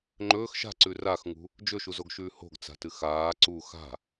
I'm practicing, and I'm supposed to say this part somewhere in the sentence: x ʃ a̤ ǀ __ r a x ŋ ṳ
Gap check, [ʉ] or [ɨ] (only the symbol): ʉ